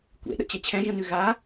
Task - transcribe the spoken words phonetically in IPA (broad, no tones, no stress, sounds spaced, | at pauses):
kʷ ḛ ɗ ə̰ t͡ɕ ɛ t͡ɕʰ ɛ̃ ʒ ə̃ n ʉ ɣ a